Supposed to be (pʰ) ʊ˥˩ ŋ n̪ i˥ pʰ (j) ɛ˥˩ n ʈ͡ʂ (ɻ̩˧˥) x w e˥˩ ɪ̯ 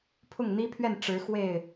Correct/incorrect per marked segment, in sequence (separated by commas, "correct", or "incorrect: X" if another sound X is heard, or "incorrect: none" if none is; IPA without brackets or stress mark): correct, incorrect: ɥ, correct